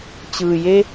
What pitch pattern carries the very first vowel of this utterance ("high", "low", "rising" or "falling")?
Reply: low